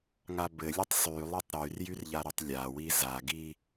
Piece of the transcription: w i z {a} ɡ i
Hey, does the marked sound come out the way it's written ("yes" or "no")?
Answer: yes